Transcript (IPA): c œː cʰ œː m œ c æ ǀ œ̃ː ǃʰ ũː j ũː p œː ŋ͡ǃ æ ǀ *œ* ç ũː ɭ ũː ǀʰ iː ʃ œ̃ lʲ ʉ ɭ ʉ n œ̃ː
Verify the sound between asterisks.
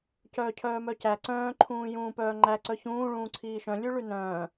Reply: correct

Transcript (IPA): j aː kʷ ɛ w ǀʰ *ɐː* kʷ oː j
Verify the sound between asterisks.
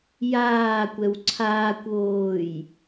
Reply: incorrect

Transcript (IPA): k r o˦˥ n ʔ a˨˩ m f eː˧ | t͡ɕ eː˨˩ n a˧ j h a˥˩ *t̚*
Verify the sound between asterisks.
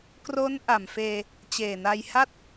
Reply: correct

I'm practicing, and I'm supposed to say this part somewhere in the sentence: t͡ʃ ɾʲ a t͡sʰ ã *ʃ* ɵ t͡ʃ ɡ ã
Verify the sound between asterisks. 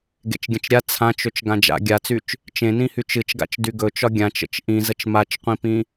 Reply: incorrect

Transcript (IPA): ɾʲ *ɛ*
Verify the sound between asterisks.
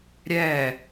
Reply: correct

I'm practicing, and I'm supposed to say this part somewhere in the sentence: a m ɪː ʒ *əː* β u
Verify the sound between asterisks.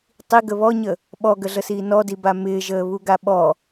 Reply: correct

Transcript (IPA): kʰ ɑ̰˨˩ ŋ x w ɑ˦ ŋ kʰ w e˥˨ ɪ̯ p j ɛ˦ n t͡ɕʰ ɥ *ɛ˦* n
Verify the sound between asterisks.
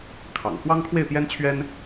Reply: correct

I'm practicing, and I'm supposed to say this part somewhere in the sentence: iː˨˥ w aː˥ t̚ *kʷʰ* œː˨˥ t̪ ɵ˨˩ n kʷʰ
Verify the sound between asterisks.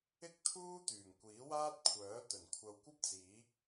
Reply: correct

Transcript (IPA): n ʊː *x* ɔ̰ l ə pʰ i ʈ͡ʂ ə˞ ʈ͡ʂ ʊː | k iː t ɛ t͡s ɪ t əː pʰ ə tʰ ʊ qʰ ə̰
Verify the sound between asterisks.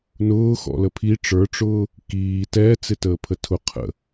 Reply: correct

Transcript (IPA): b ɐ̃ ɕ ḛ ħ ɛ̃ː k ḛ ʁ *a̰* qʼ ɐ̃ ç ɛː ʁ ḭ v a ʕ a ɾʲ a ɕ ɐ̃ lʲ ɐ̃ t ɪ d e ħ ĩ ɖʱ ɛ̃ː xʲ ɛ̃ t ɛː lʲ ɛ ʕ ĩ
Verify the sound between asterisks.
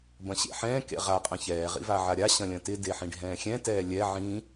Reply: incorrect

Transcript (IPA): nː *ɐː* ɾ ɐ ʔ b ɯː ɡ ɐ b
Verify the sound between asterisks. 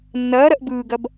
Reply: correct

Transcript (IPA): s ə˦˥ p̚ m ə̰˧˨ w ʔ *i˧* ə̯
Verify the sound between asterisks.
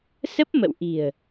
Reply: incorrect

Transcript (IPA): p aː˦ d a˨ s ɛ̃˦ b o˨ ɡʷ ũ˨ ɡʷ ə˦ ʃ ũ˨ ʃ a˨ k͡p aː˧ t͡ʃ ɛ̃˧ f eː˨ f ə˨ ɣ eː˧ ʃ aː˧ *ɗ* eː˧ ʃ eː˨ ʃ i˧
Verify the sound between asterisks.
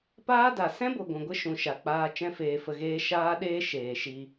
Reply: correct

